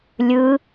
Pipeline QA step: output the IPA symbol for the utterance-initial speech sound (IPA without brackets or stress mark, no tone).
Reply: lʲ